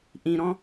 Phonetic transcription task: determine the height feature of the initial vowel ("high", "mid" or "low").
high